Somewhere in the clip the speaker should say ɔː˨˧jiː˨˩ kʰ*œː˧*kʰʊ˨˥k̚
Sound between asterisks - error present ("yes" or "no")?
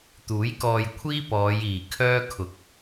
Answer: yes